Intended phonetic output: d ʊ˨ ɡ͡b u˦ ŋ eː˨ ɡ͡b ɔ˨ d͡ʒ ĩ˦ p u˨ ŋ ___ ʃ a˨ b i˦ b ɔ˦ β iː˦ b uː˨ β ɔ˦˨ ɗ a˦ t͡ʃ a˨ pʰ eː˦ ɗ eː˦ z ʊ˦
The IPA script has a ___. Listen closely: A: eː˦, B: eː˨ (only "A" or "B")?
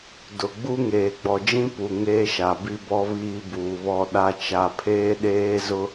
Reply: A